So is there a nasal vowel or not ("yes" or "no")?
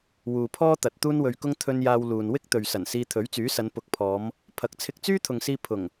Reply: no